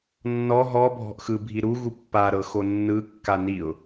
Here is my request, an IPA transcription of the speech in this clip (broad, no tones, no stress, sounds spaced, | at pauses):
nː ɔ ɦ ɔ bʱ ɔ̤ ʔ x ɯ bʱ i ɾ u ɣ u pː a ɾ ɤ x o nː ɯ kː a n i ʊ̯